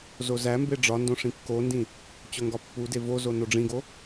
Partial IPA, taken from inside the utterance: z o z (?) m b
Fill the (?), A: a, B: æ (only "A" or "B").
B